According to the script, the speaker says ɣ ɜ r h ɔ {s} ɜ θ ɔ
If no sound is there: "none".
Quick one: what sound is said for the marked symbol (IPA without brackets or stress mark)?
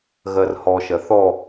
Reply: ʃ